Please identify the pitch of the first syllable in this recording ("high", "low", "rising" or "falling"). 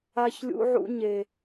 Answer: high